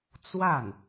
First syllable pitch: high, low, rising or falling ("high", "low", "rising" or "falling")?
falling